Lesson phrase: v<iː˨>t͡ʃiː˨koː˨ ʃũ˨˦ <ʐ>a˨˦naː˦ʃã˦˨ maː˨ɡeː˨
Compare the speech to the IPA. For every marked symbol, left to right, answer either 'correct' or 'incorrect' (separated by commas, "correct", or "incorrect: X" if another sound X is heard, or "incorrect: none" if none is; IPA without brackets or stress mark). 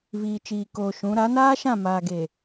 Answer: correct, incorrect: ɾ